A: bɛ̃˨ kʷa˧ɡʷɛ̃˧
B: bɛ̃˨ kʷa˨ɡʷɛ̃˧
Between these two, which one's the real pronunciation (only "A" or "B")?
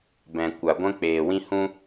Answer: B